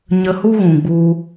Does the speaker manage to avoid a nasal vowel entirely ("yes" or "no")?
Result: no